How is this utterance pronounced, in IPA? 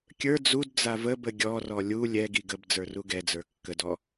kʲ ə˞ d͡z u d d͡z a v ə b ə ɡʲ ɔ r ɔ lʲ u lʲ ɛ ɡ i ɡ ə b d͡z ə˞ r u ɡ ɛ d͡z ə˞ kː ə d ɔ

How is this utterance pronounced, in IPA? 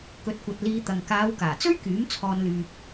k ɵ˨˥ t̚ kʷ ɐ˨ t̚ l iː˧ t̪ ɐ˨ ŋ k aː˨˧ w k aː˨˩ t͡s ɵ˥ ɥ k yː˨˥ m t͡sʰ ɔː˨ n l yː˨ p̚

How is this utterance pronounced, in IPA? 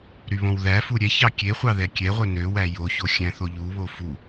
ɾ y β õ w ð æ f u ɾʲ ɛ ç ɑ kʲ e χʷ ɑ ð ɛ kʲ ɛ ʁʷ œ n ø w æ j o ç o xʲ æ̃ θ o ʎ u β o f u

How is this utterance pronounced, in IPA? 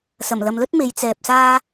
s ɐ˨˩ m l ɐ˨ m l ɵ˥ t̚ m e˨˧ j t͡s ɛː˨ p̚ s aː˥

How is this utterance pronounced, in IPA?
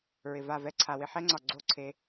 ɹ ɪ˨ v a˦˨ v ɛ˦ ǀʰ a˨ w ɪ˧ ħ ɛ˦ ŋ͡ǀ ɒ˨ ɡ͡ǀ o˦˨ ǀʰ e˧

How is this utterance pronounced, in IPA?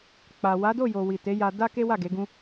k͡p a˨ w a˨˦ d o˦˨ j o˨ w i˨ t e˨˦ j a˧ d a˦ k e˦ w a˦˨ ɡ e˨˦ ɡ ũ˦

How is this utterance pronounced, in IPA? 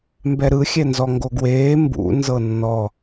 m b ɛ ɾ ɯ xʲ ɛ n z ɔ ŋ ɡ o ɡ w eː m b ṵ n z ɤ nː ɔ

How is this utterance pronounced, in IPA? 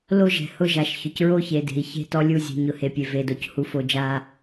l o˦ ʒ ɛ̤˨ h ʊ˦ ʒ a˨ ʃ ç ʊ˨ c ɹ o˦ ç e˨ d e̤˨ i̯ ç e̤˦ t ɔ˦ lʲ u˦˨ zʲ e̤˨ ɲ ʊ˨ h e˨ pʲ e˨ v e˨ d o˨ c h u˨ f o˨ d͡ʒ a˦

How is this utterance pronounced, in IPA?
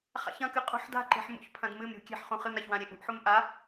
χ a̰ ç ɐ̃ k ɨ qʼ ṳ ħ d a̤ ǃ e̤ ħ m ṵ ç pʰ ɐ̃ d m ɨ m ɾʲ ṳ kʲ e̤ ħ χ ũ χ ɨ m ɾ a ç w ã ɾʲ e ʔ ṳ ʔ ħ u m ʔ a

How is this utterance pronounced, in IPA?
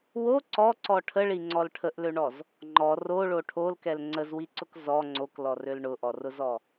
w o ǀ ɔ ǀ ɔ ʈʰ ə ɭ i ŋ͡ǀ ɔ l ʈʰ ə ʔ l ø ɳ ɔ z | ŋ͡ǃ ɔ r o ɭ o ʈʰ o l k ɛ l ŋ͡ǀ ə z w i ǀ ʊ k z ɔ ŋ͡ǀ o k l ɔ r ø l ɳ ʊ ʔ ɔ r ʊ z ɔ

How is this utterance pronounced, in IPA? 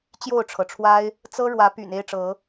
t͡ɕ j o˥˨ ʊ̯ ʈ͡ʂʰ ɤ˩ ʈ͡ʂʰ w a˦ ɪ̯ | t͡s ɤ˦ ɻ w ä˨˦ p y̰˨˩ n e˦ ɪ̯ ʈ͡ʂ ɤ˨˦

